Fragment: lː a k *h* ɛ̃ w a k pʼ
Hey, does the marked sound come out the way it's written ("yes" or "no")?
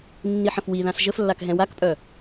no